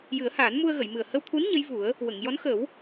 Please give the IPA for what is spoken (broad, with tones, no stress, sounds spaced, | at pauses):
j ɨ˨˩˦ ə̯ h aː˨˩˦ n m u˧ ə̯ ɣ ə˨˩˨ j m ɨ˨˩ ə̯ h ə˧ w t̪ʰ u˧˥ n ɲ ə˧˥ j v u˨˩˦ ə̯ | w ə˨˩˨ ŋ j ɔ˧˥ n x ə˨˩˦ w